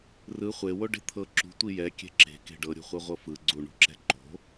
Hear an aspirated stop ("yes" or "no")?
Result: yes